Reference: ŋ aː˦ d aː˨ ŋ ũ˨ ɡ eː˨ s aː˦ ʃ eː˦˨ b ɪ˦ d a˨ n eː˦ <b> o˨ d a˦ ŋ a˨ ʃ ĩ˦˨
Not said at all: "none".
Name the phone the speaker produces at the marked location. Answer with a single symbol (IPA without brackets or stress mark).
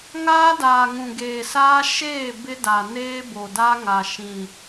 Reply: b